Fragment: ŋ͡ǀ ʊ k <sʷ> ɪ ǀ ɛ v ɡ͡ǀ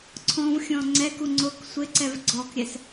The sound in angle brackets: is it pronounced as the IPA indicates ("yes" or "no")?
yes